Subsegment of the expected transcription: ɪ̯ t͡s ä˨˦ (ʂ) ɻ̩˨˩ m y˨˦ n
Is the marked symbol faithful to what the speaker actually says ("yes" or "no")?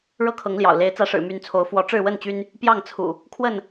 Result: yes